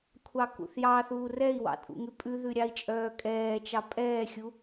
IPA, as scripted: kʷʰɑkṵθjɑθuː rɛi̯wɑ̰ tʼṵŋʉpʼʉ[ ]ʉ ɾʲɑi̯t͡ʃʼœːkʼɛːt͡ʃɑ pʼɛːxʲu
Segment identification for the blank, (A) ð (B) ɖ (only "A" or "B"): A